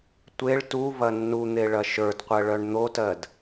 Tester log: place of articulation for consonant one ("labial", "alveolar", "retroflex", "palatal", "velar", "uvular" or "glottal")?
alveolar